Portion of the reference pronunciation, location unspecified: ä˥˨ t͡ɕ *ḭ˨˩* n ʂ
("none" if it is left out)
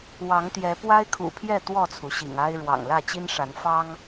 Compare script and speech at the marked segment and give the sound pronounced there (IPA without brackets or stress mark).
i˦